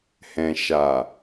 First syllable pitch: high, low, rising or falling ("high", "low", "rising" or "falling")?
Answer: low